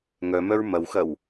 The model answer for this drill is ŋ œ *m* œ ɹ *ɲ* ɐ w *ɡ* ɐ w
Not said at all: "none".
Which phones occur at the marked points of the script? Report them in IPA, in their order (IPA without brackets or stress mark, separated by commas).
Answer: m, m, x